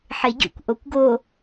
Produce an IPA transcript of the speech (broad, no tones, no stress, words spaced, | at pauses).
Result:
ħeɟṵkʷ ʔokʷɡo